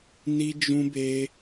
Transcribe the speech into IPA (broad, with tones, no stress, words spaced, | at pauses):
ni˦d͡ʒũ˦be˦